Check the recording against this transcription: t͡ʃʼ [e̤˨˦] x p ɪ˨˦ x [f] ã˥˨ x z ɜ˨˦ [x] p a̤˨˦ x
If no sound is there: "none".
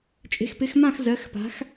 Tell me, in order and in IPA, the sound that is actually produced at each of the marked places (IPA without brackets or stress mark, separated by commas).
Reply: e̤˨˦, m, x